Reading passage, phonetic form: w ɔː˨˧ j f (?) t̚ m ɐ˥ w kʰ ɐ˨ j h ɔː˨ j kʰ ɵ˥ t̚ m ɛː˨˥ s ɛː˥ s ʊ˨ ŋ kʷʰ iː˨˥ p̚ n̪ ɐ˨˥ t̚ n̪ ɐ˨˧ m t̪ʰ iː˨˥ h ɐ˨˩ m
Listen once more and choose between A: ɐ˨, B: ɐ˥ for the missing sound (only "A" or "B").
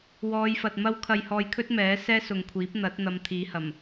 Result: A